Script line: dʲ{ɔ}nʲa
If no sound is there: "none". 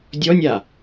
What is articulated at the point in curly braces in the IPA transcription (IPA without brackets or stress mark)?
ɔ